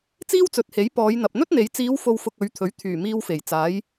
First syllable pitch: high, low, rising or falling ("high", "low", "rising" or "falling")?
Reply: high